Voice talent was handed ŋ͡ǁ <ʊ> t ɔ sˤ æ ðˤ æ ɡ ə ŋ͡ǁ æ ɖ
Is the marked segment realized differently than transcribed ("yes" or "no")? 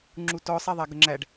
yes